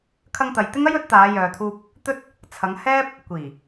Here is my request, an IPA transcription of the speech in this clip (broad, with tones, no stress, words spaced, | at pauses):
kʰɐ˧ŋt̪ɐ˨jt̪ɪ˥ŋɐ˥j ɵ˨˥t̚t̪aː˨˧ jœː˨t̪ʰuː˧p̚ | t̪ɵ˥t̚ | t͡sʰɐ˨˧ŋhɛː˥p̚ | kʷiː˨˩